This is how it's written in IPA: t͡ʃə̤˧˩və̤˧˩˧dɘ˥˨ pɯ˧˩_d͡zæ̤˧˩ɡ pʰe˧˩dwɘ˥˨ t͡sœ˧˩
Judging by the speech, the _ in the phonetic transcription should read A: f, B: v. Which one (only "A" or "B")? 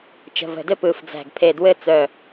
A